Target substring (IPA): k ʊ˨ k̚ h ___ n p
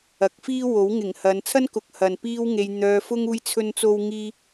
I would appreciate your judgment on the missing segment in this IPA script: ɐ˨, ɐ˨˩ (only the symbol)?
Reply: ɐ˨